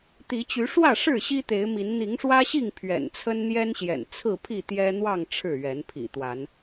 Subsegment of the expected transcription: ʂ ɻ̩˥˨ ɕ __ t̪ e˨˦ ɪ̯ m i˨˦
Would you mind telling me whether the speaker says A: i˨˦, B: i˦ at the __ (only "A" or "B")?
B